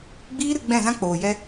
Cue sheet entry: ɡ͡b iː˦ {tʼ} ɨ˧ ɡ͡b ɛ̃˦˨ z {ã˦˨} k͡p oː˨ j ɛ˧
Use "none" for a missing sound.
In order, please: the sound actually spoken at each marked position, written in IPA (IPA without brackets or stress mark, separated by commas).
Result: ɾ, ã˦